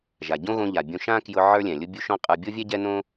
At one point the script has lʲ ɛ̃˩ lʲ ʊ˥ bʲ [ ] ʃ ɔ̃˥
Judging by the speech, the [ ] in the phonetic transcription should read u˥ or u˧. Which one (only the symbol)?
u˥